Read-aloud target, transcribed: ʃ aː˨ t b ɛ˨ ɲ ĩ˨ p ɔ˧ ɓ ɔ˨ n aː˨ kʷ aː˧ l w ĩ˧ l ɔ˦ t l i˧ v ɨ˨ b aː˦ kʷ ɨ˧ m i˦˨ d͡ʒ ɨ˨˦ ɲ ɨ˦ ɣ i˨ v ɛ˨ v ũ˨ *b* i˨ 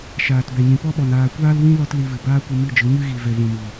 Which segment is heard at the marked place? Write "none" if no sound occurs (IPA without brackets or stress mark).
m